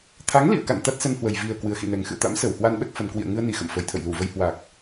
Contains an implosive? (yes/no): yes